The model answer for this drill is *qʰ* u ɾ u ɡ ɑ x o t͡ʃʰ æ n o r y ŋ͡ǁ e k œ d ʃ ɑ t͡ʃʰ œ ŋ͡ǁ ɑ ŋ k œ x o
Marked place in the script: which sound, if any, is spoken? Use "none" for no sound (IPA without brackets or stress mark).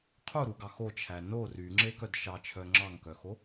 qʰ